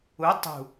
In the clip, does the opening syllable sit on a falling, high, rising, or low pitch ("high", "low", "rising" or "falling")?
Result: rising